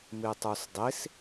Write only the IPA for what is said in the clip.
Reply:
mitˤusdˤis

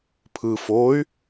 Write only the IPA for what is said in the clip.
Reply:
pʰɯ foy̯

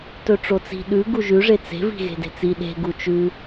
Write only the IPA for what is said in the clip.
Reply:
tɵʈ͡ʂot͡si̤ ɗʉ ɡuʒʉʐe t͡se̤vi̤ ɣe̤de̤t͡si ɗe̤ɡu t͡ʃʉ

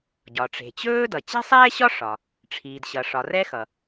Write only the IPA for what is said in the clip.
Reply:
ɟɒ˩ʈ͡ʂe̤˩t͡ɕɵː˥dʌ˩ t͡ɕe̤˥sˤɛː˥ɕɒ˥ ʂɒ˩ | ʈ͡ʂʰiː˩dɕʌ˩ʂɒ˩ rɛ˥xʌ˩

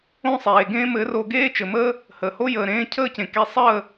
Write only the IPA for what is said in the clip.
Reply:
õ˦sˤeː˨ɡẽː˦ mɘ˨˦ro˧ ɡeː˦t͡ʃɘ˨məː˦ | həː˨ho˦ jəː˨ɾẽː˧cʰəː˦˨cẽ˨ ke˧sˤəː˦˨

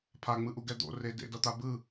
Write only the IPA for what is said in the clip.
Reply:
pʰaŋ͡mɯʔu ɡɛd̪o̰re dḛdʌt̪a bɯ

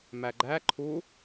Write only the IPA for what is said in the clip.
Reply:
mæɡ͡ǃæ ǃʰu

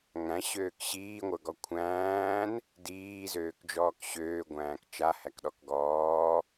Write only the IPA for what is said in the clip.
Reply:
ŋæ̃ɕøːk ɕiːŋʷə˞ɡɔ kʷʰæ̃ːn | diːzøːkd͡ʒɔːk ɕøːɡʷæ̃ːk t͡ʃahækɗɔk ɡɔː

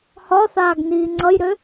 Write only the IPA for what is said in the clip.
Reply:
hɒθaːɡniː ŋ͡ǀʌjɾø

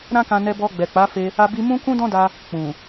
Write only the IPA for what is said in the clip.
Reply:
ɾã˦kã˧nɛ˧ bɔ˧ɡ͡bɛ˨k͡pa˨˦fe˧ | a˧bi˧mũ˦ kũ˦dɔ̃˦da˧ | k͡pũ˨

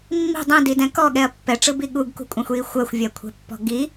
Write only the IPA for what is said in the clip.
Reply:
mːi̤ dˤĩdidɛ̃ kɔɠɛɐ̯ pːɛʈ͡ʂɯbi ɠuɡkṳkʷʼɛ̃xʷji xʷɜxʷvʲɜkʷʰɛ̤pːɔ̤ ɡi

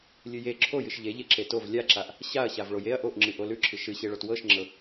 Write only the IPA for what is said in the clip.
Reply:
lʲɨje ǁʰojɨʃ ʎeʎe ǁetov lʲaǁaʔ | ɕaɐ̯ɕav ɭojeɐ̯ ʔoʔŋ͡ǁɨ ʔolʉǁʰɨ ʃɨɕeɭot wɤʃŋ͡ǁɤ

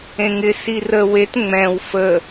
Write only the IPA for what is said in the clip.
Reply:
ẽŋɪ sirə wet ŋ͡mɛ̃w fə

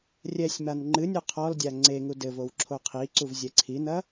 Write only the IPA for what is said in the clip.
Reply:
rʲɛsʲman ŋ͡ǃɨnʲo qʰɔldʲa ŋ͡ǀeŋu dɘvow ǁʰoqʰiǀuv zʲɛǀʰinɐ

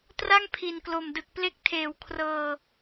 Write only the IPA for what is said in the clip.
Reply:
tra˥˩ŋpʰi˨˩nklo˨˩m dɯ˨˩k̚ple˦˥k̚tʰeː˩˦w kʰrɤː˧

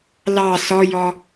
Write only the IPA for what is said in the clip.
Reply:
lɑ sɔjɔ

